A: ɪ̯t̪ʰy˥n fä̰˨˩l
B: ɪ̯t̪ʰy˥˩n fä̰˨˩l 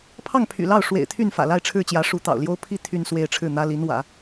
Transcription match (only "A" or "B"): B